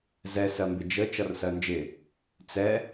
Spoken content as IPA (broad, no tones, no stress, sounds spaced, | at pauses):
z ɛ s ɜ m b ɪ d͡ʒ ə t͡ʃ ʌ r s ɜ n d͡ʒ ɪ | t͡s ɛ